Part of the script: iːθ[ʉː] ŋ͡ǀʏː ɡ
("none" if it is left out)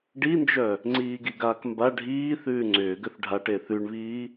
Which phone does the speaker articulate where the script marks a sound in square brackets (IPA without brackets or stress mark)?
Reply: ʉː